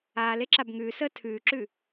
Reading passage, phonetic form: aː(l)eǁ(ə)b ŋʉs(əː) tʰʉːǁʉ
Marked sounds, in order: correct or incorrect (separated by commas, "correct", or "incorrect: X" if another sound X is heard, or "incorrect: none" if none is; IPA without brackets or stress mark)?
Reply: correct, incorrect: a, correct